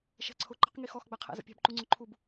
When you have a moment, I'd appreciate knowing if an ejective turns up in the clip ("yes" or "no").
no